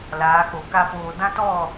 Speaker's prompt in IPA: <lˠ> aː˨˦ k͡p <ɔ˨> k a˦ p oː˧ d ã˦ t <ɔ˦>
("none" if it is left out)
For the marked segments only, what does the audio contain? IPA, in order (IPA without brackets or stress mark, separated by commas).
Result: l, o˨, ɔ˦˨